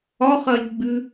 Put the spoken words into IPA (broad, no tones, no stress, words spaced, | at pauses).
ɒχɐlʲɡ͡bʉ